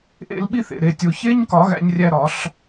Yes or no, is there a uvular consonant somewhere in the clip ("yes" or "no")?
no